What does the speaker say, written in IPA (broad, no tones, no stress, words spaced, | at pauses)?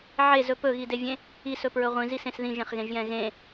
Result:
ʕezɵ pɵɣidevʲẽ | isɵpɹɵ ʁʷĩzisẽs ðĩʒẽχɣẽʒjɛ̃ ɣẽ